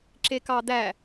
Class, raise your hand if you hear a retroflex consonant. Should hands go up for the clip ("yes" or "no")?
no